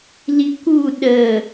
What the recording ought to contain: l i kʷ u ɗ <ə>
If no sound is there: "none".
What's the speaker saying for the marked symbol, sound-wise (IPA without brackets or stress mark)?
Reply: ə